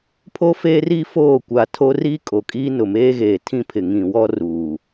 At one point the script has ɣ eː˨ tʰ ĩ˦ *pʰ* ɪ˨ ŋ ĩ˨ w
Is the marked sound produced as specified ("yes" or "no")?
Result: yes